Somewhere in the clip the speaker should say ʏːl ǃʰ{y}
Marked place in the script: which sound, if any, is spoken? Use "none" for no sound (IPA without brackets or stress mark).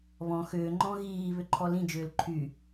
y